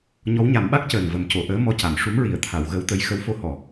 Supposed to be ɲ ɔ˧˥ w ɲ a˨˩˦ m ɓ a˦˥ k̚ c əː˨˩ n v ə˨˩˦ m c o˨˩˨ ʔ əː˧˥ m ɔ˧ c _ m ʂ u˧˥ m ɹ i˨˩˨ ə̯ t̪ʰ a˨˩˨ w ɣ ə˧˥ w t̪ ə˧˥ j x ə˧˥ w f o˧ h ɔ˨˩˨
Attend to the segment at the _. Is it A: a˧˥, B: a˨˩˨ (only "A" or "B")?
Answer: B